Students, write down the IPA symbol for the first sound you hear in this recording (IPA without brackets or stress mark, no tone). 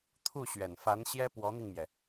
t̪ʰ